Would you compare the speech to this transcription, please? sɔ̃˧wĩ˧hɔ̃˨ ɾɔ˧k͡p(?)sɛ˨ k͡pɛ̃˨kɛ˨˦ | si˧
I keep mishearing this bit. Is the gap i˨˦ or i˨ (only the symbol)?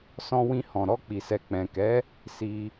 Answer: i˨